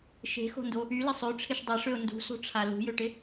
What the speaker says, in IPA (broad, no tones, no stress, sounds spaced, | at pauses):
ʃ e̤ x o̤ n d o | y l ɪ sˤ ø ʈ͡ʂʰ ɪ ʃ dˤ ɐ ʂ ø ʊ̯ n d ṳ s o̤ ʈ͡ʂʰ a l ṳ j ø ʈ ɪ